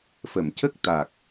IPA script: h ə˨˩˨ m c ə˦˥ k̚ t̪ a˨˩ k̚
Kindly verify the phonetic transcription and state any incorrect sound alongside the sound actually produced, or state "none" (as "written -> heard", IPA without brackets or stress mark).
h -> f